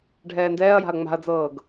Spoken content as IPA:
ɖʱ ɛː n d ɛː ɐ̯ j a̤ ɐ̯ ŋ͡m a̤ ɐ̯ d͡z ɤː ɡ

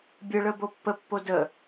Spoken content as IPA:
bʲ ə ɭ ə b o pː ə pː o d ə

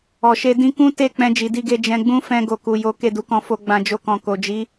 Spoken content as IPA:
ɔ˨ ʃ e˧ d ĩ˦ k ũ˦ t e˦˨ k͡p ɛ̃˧ d͡ʒ i˨ d i˧ ɡ e˧ d͡ʒ ɛ̃˧ ɡ͡b ũ˦ f ɛ̃˧ ɡ o˨ k u˨ j o˨˦ k e˦˨ d u˨˦ k ɔ̃˧ f o˧ ɡ͡b ã˧ d͡ʒ o˧ k ɔ̃˨ k o˨ d͡ʒ i˨˦

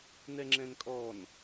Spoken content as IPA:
n ɛ ŋ͡ǁ ɛ̃ n kʼ ɔ n

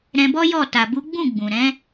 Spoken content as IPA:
ɾ ɛ̃˧ b ɔ˦ j ɔ˦˨ t a˨ b u˨˦ ɡ͡b ũ˦˨ ɡ͡b ũ˨ ɾ ɛ̃˨˦

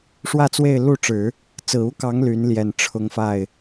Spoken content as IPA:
ʂ w ä˥˧ t͡s w e˥˧ ɪ̯ l u˥˩ ʈ͡ʂ ɻ̩˨˩˦ | t͡s ɹ̩˨˩ u˥ k ɑ˧˥ ŋ l y˧˥ n l j ɛ˨˩ n ʈ͡ʂʰ ʊ˧˥ ŋ f a˥˩ ɪ̯

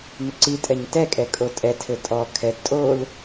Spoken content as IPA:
n ʏ ǀ i tʼ ɛ ɲ t ɛ kʼ ɛ kʼ o tʼ ɛ tʰ ɘ tʼ ɔ kʰ ɛ d tʼ o l

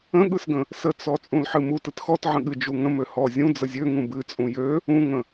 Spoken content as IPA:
ə̃ ɠ ɯ s ɡ ə̃ | s ə t͡s ɔ t͡sʼ ũ l ħ ɨ m u t ɯ t x ɔ t ʕ ə̃ ɠ ɨ d͡ʒ u ŋ ə̃ m ø h ɔ zʲ ũ d͡z ə zʲ ø ŋ ũ b ɨ t͡sʼ ũ j ø | ũ ŋ ə̃

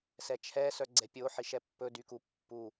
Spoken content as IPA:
s ɛ t͡ʃʰ ɛ s œ ɡ͡ǀ ɛ pʲ o ħ i ʃ ɛ pː ɵ d y k u pː u

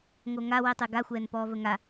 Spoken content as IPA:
ŋ o ŋ a w i tˤ i ɡ a xʷ ɛː n p ɔː v ə ŋ a

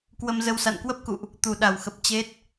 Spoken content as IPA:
k w ə˧ m z ə˧ w s a̰˧˨ n k w ə˦˥ p̚ k ṵ˧˨ ʔ | t̪ u˨˩ ɗ a˨˩ w x ə˨˩ p̚ t͡ɕ e˦˥ t̚

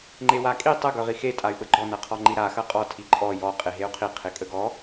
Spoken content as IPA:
ŋ͡ǃ e w a kʼ i tˤ ə ɡ œ ʁ i x e tʼ a y̯ ɓ ə ɡ͡ǃ ɔ n ɐ qʰ ɔ ŋ͡ǃ i ɾ a x ɐ qʼ ɔ tʰ i ǃʼ ɔ j ɔ qʼ e ɦ e u̯ qʰ i qʰ e kʼ ə ɡ ɔ

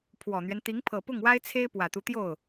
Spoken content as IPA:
pʰ w ɔ˨˩ n̪ ɥ ɛ˦ n t̪ i˧˥ ŋ pʰ ɤ˨˩ p ʊ˥˩ ŋ w a˥ ɪ̯ t͡sʰ e˥ ɪ̯ p w ä˨˩ t̪ u˦ t̪ j o˥˩ ʊ̯

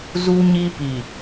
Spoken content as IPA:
z u˦ ɲ i˦ p i˨

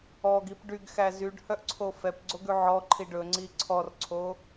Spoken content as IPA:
ɔ ɡ i p ɖ y ɡ x æ z y ɖ h œ ʔ ǀʰ o f ɛ p ɡ͡ǀ o ɡ ʉ ʕ ɔ ǃʰ i ɖ ɵ ŋ͡ǀ i ǀʰ ɔ r ǀʰ o

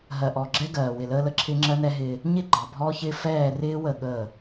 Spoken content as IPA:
ɦ ɜ˨ ʔ ɔ˨ ɡ͡ǁ ɛ˦ ɡ ɜː˨ w ɪ˨ l əː˦ l ə˦ ǁʰ ɪ˦ ŋ͡ǁ ɜ˦ n ɛ˦ ɦ ɪː˦ | ɲ ɪ˦ ɡ͡ǃ ɑ˨ bʱ ɔ˦ ç ɪ˦ f ɛː˦˨ r ɪː˦ w ə˦˨ ɠ əː˦˨

